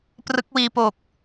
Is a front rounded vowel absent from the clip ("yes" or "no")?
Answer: yes